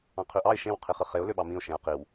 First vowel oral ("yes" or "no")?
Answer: no